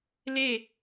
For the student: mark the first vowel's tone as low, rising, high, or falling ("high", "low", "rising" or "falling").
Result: falling